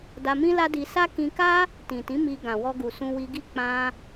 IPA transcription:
d a˧ m ĩ˦ l a˦ d i˧ s a˦ k ĩ˧ k a˦ | t ĩ˨ t ĩ˨˦ m i˧ ɡ ã˨ w ɔ˧ ɡ u˨ s ũ˧ w i˧ ɡ i˦ k͡p ã˧

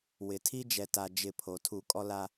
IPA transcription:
w ɪ˨ tʰ i˦ d͡ʒ ɛ˨ t a˨ d͡ʒ ɪ˦˨ pʰ o˨ tʰ u˦˨ kʼ ɔ˦ l a˦

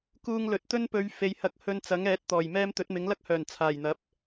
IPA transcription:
k uː˧ ŋ l ɵ˨ t̚ t̪ ɵ˥ n p ɵ˨˧ ɥ f e˨ j h ɐ˨˥ k̚ h ɵ˧ n t͡s ɐ˨˥ ŋ ɛː˨˥ t̚ t̪ ɔː˨˩ j m ɛː˥ m t̪ ɵ˨˥ t̚ m ɪ˨˥ ŋ l ɐ˥ k̚ h œː˨˩ n t͡sʰ aː˨˩ j n̪ ɐ˨˥ p̚

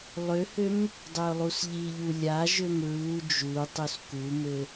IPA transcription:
lˠ ø h ø m | dˤ ø ʊ̯ lˠ u s ʎ i ʎ u lʲ a ʒ ø m ɹ u d͡ʒ u tˤ u s k u m ɘ

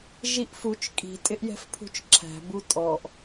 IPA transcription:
ʒ i ʔ f u t͡ʃ kʼ i̤ tʼ ɪ ʔ j ɛ̤ f pʰ ṳ t͡ʃ ǁʰ æ̤ b u tʼ ɔ ʔ

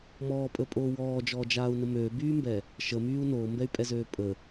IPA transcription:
m ɔː pʼ ə pʼ oː w ɔː d͡ʒ ɔː d͡ʒ aː u̯ n ə m ø b yː m b ɛ | ʃ ə m yː u̯ n oː m b ɛ y̯ pʼ ɛ z øː pʼ ə

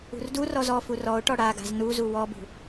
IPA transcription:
ṳ r d u r ɔ z ɔ f u r ɔ ʊ̯ ʈ ɔ ɽ a ɡ a̤ z n u z u w ɔ b ṳ

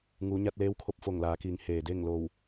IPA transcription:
ŋ uː˩˧ ɲ a˧ t̚ l eː˧˥ w kʰ o˧˥ p̚ f o˧˩ ŋ l aː˩˧ k iː˩˧ ŋ h eː˩ d e˥˨ ŋ l o˧˩ w

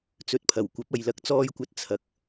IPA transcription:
t͡s ɵ˨˥ t̚ pʰ ɐ˨˩ w kʷ ɐ˨˥ p̚ ɐ˨ j l ɐ˨ k̚ t͡s ɔː˧ j kʷ ɐ˨˥ t̚ t͡sʰ ɐ˨ k̚

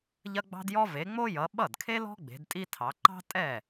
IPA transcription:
ʎ ɐ˥ ɡ͡b ɑ̤˥ d j ɔ˥ v e˨˦ ŋ͡m o˥ j ʌ˨˦ ɓ ʌ˥˩ d kʰ e˥ l ɔ̤˥ ɡ͡b e̤˨˦ d tʼ i˥ tʰ ɑ˨˦ ǃ ɑ̤˥ tʼ ɛ˥˩

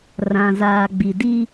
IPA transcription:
r ã˨ z aː˨ ɡ͡b i˨ d i˦

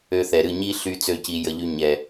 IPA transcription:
ø˧ θ ɛ˨ ɾ ɨ˦˨ ɲ i˦ ɬ y˧ t͡s ø˦˨ c i˧ j ə˧ ʎ y˦ ɲ ɛ˨

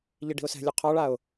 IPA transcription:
ʎ i ɖ i̤ ʊ̯ s ɛ̤ lʲ u qʰ ɔ ɭ a ʊ̯

